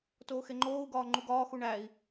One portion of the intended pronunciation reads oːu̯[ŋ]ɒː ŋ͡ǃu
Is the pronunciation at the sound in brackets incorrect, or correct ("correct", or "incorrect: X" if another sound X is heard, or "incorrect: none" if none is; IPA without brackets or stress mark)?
incorrect: ɡ